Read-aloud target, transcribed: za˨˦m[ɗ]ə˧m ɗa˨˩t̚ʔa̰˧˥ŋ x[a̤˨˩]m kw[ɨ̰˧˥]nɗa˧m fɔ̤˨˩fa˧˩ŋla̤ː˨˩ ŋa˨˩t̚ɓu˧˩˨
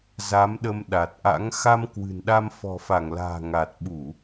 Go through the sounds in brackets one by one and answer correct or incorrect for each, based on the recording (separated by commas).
correct, incorrect, incorrect